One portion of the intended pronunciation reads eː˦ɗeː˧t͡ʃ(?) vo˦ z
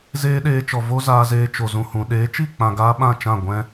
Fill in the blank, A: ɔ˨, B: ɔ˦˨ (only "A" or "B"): A